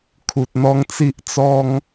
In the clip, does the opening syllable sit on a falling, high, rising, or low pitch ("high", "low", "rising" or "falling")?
low